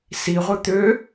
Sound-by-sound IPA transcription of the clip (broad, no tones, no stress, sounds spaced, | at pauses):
s i ʁʷ ɯ t̪ ø